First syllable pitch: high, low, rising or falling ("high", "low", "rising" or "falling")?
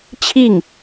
falling